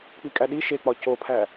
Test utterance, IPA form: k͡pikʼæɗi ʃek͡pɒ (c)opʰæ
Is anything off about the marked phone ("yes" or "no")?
no